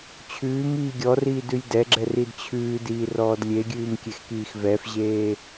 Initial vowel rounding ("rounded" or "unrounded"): rounded